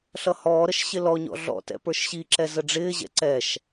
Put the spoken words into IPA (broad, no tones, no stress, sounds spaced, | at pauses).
ɬ ʌ h ɔː ɾ ə ʃ ɕ ɪ l ɔ ɲ ɔ̰ ɮ ɔ̰ t ɛ̰ p ə˞ ʃ ɕ i ǁ ɛ z ə ɖ͡ʐ ɪː ʑ ɛ̰ ǀ ɛ ʃ